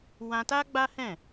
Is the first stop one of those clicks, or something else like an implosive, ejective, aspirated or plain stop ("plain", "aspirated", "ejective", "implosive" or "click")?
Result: plain